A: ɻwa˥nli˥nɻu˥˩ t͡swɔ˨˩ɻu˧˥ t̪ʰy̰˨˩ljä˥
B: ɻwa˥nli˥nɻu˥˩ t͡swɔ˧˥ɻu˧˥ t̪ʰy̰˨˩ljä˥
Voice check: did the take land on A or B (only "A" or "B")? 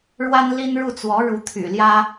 B